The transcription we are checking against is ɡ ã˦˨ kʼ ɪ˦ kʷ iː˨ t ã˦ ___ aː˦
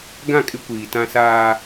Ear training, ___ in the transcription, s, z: s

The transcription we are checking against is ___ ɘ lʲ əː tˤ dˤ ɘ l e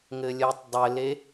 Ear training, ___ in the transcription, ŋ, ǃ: ŋ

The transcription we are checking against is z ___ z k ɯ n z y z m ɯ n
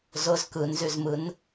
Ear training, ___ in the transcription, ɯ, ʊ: ʊ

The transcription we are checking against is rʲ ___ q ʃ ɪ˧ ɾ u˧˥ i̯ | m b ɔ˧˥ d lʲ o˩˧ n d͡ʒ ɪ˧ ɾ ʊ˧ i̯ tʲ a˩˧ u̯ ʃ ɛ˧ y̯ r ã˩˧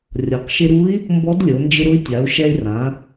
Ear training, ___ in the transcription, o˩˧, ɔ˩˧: ɔ˩˧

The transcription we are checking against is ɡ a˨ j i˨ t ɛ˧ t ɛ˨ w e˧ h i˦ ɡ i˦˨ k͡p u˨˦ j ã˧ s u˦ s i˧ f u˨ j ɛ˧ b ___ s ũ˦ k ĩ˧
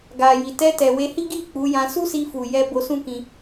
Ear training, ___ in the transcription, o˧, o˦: o˧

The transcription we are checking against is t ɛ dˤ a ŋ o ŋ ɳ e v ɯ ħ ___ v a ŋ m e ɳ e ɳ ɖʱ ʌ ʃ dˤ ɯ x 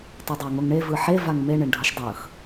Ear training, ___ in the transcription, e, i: e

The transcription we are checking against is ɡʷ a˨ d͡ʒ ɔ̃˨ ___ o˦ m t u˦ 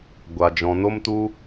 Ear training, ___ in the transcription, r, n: n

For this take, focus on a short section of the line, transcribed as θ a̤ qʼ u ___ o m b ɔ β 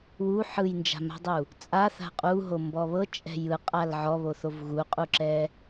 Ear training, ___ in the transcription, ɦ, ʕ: ɦ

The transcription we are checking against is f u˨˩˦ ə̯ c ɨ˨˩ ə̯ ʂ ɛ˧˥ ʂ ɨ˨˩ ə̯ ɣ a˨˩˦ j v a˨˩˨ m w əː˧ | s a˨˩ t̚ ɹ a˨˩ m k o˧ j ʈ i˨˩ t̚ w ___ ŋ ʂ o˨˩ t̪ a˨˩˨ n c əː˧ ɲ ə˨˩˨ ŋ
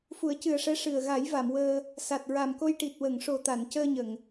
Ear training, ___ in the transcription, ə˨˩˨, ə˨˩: ə˨˩˨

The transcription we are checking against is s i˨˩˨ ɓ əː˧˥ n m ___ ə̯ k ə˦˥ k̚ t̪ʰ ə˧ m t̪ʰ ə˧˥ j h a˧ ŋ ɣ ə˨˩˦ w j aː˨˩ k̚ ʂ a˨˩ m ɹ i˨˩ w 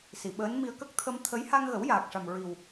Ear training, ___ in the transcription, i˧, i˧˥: i˧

